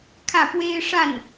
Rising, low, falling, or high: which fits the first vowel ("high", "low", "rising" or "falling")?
falling